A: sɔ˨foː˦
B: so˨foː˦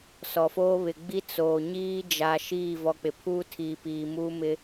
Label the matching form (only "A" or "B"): A